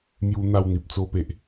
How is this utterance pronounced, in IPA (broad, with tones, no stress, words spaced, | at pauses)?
mju˧ n̪a˥˧wn̪i˨p̚t͡so˦pe˨ʔ